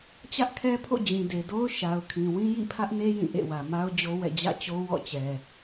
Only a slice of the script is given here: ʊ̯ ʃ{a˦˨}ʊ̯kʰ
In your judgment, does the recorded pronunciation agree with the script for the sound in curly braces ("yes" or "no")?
no